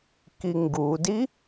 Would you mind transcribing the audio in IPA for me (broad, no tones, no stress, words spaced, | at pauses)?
kiŋɡudi